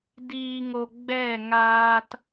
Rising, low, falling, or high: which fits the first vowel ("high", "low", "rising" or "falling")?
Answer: low